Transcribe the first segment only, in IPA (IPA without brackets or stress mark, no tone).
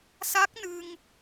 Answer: s